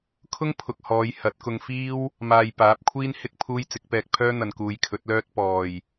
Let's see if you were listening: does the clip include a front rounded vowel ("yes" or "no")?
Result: yes